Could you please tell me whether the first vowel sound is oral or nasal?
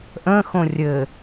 nasal